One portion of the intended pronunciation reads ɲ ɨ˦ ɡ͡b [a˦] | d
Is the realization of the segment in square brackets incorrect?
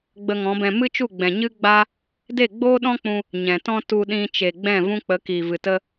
no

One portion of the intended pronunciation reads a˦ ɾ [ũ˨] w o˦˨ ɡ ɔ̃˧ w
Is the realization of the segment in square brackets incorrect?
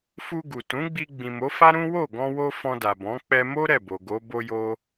yes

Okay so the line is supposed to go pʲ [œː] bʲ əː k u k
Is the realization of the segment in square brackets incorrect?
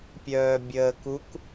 no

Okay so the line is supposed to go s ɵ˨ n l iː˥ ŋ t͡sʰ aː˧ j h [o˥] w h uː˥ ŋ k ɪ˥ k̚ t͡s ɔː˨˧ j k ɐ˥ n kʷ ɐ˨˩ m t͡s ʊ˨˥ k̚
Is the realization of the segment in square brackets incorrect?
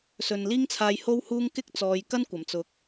no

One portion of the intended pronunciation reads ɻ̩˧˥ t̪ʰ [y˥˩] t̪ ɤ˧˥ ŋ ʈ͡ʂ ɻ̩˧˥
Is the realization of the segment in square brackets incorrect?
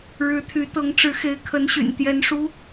yes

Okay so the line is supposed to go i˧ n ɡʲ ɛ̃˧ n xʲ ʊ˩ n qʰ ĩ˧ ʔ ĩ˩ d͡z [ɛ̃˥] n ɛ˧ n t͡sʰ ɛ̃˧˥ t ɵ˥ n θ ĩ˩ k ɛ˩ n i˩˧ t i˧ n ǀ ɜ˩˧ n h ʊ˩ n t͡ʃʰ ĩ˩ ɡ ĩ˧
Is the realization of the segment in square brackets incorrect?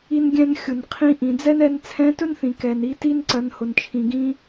yes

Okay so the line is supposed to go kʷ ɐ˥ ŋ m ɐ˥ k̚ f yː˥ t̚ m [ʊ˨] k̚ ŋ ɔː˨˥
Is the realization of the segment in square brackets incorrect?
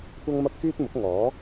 yes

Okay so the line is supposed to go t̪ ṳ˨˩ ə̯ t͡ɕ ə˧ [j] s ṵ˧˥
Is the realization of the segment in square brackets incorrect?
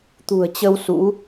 yes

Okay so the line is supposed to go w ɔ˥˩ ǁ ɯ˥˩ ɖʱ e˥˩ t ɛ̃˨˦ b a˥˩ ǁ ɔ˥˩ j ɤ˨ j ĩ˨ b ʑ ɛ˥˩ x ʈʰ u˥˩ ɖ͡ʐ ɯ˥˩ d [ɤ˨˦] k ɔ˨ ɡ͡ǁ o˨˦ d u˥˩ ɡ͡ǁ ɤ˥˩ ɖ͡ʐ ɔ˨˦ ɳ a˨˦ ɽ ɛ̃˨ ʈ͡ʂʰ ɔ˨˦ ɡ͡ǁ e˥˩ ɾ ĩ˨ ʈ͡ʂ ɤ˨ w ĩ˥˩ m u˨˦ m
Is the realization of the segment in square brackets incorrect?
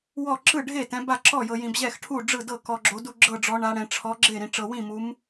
yes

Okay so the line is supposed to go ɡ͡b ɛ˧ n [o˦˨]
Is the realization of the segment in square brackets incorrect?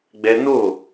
no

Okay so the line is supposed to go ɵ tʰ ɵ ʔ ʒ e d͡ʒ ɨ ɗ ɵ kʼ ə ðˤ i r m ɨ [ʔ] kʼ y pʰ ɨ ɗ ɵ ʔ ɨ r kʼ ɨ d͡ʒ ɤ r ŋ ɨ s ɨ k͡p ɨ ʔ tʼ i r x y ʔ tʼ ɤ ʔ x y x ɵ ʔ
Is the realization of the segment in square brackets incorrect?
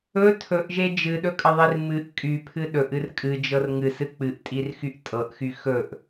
no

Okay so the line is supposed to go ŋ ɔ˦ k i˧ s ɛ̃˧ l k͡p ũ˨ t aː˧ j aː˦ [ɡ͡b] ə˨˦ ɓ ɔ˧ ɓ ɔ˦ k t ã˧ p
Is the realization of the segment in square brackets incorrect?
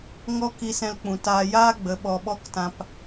no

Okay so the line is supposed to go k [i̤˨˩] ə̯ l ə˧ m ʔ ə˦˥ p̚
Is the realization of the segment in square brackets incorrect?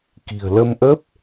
no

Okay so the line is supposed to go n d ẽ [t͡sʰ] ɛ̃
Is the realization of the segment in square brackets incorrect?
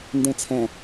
no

